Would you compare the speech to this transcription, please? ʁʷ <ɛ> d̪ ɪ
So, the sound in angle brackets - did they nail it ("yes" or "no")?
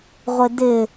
no